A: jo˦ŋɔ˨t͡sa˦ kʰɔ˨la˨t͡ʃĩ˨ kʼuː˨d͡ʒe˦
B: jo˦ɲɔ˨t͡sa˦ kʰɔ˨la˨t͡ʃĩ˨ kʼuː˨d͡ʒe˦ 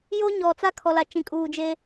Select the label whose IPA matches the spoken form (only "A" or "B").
B